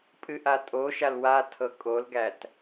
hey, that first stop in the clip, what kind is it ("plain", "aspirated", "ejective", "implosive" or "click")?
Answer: ejective